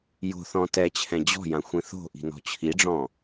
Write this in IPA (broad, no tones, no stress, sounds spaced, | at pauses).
j o̤ θ ɔ̃ t ɛ t͡ɕʰ ɛ̃ d͡ʑ ɔ̤ j ã xʷ ĩ θ o̤ ʔ i̤ n ɔ̤ t͡ɕʰ i ɖ͡ʐ ɔ̃